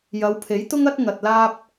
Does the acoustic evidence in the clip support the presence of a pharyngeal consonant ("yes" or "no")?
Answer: no